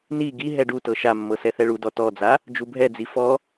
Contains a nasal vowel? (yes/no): no